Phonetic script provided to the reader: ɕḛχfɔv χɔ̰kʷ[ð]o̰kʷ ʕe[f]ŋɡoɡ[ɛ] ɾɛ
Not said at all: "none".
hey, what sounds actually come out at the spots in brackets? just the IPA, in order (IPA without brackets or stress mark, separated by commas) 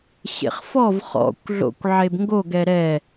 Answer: ɮ, b, ɛ